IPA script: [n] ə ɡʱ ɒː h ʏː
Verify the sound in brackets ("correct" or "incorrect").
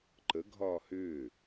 incorrect